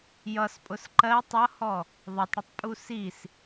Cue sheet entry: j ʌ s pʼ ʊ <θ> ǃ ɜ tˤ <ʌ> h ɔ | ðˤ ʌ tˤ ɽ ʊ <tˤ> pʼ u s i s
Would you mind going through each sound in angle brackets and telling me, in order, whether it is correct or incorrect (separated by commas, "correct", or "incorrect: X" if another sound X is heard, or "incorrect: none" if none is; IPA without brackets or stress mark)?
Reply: incorrect: s, correct, correct